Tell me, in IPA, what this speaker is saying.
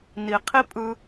ni˨qʰi˦ pʼɯ˦

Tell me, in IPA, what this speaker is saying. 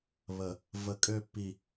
βə˨ | və˨kʼø˦˨pːi˨

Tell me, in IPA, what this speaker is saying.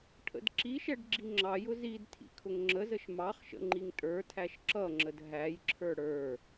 ʈʰə̰dǁiʃɛɖ ɡ͡ǁiŋ͡ǁɑjʊ zid tʰḭkʰʊŋŋ͡ǁəzəʃ mɑχʃə̰ ŋ͡ǃiŋtʼə˞tʰæʃ ǁʌŋ͡ǁəd ɦæjǁʰə˞ ɽə˞

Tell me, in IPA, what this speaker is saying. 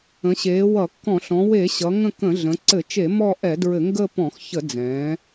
ə̃˩˧ɕeː˩˧ wʌ˧˩˧kːɔ̃˧˩˧ ɬɔ̃˩˧we˧˩˧ɕʌ˩˧ ŋə̃˦˨kə̃˧˩˧ ɮə̃˩˧ǀɘ˧˩˧t͡ʃe˧˩˧ mɔ˦˨ʔɛ˧˩˧dɹɘ˧˩˧ ŋɡə˦˨ pɔ̃˧˩˧x çə˧˩˧d͡zɛ̃ː˩˧

